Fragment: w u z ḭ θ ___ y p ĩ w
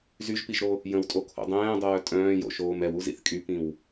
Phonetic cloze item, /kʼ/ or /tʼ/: kʼ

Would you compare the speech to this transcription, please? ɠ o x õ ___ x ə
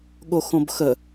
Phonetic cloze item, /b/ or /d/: b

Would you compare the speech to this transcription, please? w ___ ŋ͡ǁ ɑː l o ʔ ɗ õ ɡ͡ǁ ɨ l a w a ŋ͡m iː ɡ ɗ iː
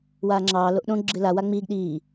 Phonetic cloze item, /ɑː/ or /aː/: aː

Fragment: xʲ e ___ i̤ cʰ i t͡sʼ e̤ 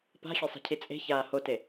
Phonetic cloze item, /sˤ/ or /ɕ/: sˤ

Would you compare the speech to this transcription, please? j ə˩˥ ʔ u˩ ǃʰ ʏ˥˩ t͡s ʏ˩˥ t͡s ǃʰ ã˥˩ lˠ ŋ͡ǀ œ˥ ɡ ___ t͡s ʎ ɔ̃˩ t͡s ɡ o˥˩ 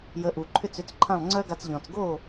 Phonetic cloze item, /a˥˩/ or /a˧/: a˧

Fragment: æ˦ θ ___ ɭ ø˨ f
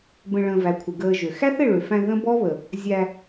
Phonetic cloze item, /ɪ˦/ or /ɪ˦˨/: ɪ˦˨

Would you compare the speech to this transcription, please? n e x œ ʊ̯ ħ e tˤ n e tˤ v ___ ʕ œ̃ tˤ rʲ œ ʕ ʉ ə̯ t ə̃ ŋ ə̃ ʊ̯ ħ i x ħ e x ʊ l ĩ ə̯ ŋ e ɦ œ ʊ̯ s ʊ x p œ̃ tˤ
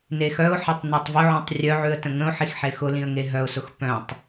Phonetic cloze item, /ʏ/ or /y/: ʏ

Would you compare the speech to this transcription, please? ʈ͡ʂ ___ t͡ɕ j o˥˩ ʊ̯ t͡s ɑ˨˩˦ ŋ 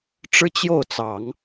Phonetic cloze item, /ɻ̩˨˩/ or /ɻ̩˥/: ɻ̩˥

